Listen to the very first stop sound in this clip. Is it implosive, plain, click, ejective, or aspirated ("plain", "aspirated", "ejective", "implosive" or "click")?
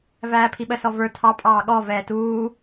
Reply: aspirated